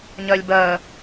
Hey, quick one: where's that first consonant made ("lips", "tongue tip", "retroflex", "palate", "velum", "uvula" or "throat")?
palate